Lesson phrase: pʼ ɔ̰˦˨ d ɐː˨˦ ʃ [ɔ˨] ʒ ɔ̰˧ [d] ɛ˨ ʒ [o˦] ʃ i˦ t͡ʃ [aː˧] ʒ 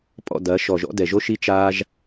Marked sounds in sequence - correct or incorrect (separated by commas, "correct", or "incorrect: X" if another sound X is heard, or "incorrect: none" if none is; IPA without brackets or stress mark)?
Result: correct, correct, correct, incorrect: aː˦